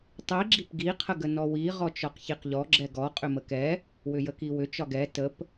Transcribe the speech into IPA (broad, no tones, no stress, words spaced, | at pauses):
tˤi ɡ͡ǁipɡi qʰəɡənɔwi ʁɔt͡ʃɒqçiqʎɔ ɡ͡ǁɛɡɔ qʼʏməkɛ | wʏjəkiwʏ t͡ʃɒɡɛ təp